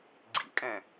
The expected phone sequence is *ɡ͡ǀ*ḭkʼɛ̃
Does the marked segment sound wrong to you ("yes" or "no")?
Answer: no